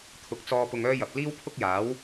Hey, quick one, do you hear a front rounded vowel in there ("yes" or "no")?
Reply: yes